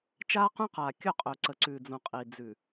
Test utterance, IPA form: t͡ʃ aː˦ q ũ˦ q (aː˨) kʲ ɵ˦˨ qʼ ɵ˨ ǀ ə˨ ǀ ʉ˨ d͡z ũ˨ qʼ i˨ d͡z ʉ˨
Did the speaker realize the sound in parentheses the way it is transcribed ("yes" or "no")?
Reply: yes